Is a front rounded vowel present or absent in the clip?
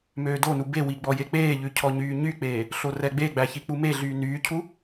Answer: present